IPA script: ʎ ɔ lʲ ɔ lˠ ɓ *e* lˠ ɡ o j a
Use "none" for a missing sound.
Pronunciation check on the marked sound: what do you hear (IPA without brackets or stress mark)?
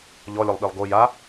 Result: i